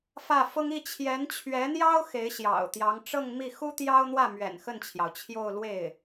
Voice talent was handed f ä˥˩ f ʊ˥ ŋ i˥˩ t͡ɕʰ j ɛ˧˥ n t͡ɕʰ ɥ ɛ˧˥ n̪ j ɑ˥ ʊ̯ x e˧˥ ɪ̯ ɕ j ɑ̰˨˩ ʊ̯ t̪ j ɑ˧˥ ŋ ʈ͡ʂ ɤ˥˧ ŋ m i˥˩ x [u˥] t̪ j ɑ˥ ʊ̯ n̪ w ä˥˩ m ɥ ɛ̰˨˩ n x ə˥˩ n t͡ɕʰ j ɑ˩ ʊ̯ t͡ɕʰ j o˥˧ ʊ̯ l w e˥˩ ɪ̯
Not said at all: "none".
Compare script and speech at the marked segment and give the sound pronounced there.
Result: u˥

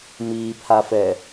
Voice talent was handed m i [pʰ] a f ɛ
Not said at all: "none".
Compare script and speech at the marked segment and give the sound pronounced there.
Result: pʰ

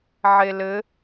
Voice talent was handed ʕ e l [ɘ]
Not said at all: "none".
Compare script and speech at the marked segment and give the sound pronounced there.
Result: ɘ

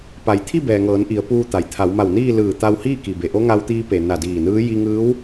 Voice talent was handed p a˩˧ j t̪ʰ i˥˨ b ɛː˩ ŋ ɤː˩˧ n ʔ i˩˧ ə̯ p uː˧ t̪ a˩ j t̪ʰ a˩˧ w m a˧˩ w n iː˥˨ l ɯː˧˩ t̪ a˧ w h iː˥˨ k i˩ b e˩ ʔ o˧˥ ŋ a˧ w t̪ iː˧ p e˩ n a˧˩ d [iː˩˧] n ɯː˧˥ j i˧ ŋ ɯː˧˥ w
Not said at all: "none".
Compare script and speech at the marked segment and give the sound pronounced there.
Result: iː˧˩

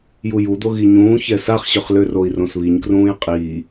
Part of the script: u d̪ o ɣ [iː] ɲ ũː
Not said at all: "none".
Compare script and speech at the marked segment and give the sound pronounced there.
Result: i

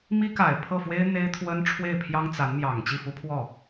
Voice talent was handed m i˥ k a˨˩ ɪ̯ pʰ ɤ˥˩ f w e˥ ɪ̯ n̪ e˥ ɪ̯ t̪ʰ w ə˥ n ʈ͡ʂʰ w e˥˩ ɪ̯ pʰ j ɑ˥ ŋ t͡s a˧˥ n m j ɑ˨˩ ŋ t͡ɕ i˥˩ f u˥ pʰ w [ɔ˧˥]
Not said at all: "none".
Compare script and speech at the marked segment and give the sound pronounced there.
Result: ɔ˥˩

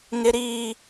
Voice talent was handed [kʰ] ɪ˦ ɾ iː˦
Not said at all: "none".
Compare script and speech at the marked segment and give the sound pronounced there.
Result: ŋ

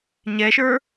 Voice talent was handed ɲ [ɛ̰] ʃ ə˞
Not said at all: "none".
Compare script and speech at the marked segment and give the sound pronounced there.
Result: ɛ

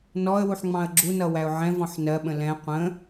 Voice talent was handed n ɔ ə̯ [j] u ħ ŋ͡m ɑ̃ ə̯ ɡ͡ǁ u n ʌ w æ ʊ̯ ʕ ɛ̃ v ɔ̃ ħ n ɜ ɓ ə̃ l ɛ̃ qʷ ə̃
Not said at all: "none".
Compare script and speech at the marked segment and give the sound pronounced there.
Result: w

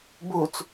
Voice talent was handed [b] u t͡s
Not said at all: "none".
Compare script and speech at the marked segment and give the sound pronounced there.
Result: b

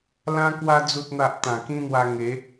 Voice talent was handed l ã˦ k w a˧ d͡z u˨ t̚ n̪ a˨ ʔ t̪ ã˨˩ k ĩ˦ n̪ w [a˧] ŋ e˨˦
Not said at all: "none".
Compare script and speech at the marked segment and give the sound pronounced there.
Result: a˧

